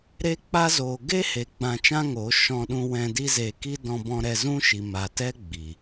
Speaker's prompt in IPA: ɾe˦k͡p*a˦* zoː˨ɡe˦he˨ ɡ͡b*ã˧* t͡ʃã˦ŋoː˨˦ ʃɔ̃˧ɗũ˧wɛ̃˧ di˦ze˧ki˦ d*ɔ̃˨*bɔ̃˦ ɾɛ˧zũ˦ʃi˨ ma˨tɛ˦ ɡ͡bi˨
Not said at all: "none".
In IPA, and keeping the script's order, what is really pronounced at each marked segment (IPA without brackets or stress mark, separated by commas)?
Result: a˦, ã˧, ɔ̃˦